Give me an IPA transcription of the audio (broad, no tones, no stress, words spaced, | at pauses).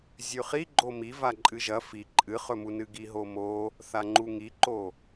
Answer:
zʲʉχi ɡ͡ǃomi vaǃʼɨʒɐ fi ǃʼɨχɵmu nɨɡiɦomo | θaŋ͡ǃuŋiǃo